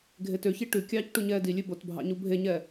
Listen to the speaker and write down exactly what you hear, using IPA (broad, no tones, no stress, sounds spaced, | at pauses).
ɡʱ e t ø ç i ʈ ʉ kʲ ɑː c ʈ u ɲ ɛː d i lʲ ʉ b o t bʱ ɑ̰ ɲ u bʱ e ɲ ɛ